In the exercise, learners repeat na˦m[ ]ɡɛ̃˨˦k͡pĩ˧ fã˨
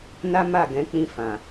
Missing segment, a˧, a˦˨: a˦˨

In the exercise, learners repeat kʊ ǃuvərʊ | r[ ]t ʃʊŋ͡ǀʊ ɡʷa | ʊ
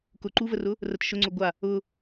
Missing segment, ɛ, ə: ə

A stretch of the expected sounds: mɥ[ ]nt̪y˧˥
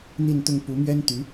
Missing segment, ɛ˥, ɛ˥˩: ɛ˥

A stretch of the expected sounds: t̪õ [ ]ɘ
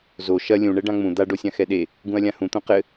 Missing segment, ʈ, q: q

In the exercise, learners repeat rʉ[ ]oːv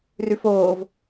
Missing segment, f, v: f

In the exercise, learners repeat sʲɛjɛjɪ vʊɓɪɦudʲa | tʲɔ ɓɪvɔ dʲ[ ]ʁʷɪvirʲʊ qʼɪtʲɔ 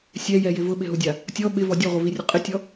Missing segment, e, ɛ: ɛ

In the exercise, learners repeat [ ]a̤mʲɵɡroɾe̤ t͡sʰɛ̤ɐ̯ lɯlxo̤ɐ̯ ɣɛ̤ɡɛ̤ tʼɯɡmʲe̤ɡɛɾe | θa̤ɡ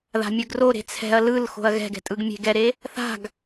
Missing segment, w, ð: ð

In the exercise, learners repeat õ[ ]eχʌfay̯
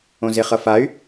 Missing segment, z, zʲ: z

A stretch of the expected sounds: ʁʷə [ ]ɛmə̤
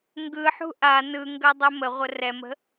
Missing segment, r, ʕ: r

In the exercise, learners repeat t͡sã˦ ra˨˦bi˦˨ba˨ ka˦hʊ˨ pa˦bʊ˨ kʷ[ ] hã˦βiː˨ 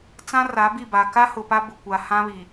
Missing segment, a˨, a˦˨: a˨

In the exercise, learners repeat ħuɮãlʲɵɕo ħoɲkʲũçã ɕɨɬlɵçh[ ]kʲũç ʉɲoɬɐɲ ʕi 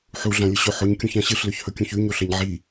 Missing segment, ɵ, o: ɵ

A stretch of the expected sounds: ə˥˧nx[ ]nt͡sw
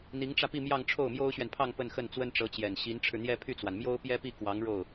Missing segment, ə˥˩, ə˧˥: ə˥˩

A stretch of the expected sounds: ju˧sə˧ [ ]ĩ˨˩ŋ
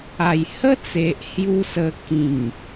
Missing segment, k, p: k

